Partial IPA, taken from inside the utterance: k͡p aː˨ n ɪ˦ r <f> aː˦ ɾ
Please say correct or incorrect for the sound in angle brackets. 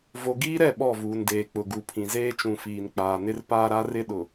incorrect